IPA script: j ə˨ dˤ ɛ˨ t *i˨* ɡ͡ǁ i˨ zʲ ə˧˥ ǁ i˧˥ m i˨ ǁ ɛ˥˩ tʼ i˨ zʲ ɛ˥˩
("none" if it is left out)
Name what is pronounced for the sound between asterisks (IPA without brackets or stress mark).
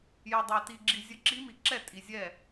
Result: i˨